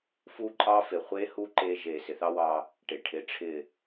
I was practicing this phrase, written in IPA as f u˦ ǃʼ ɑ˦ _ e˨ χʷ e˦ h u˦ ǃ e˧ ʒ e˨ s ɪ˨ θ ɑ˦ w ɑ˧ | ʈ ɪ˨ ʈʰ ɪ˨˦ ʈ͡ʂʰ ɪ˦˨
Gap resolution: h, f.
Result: f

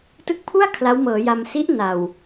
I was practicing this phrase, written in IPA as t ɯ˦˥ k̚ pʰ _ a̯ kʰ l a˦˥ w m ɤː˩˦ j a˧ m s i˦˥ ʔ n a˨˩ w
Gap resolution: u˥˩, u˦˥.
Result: u˥˩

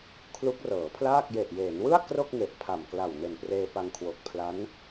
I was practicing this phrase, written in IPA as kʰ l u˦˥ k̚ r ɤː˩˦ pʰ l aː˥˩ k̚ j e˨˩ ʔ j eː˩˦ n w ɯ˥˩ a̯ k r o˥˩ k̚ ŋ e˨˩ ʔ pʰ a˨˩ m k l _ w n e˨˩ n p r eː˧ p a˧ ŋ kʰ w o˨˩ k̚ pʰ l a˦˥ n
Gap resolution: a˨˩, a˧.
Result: a˨˩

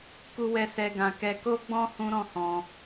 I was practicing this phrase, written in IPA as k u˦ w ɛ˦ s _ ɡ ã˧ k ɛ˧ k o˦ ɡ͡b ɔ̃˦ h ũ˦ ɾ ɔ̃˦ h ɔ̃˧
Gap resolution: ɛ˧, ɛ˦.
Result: ɛ˦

